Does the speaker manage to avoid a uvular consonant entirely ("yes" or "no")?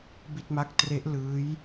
yes